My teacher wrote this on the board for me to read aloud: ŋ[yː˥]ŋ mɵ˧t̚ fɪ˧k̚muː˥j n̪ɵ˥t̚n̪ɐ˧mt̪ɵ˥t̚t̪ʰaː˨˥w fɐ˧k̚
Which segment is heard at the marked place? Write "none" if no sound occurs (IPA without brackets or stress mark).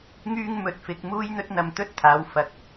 yː˥